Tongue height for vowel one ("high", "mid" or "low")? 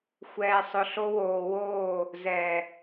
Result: mid